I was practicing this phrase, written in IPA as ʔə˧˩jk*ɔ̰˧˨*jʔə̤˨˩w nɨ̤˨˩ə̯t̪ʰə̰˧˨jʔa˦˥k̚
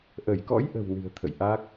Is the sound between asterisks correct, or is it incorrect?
incorrect